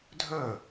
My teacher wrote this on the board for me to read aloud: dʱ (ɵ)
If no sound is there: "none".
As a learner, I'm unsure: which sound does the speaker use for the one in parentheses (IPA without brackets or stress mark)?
ɵ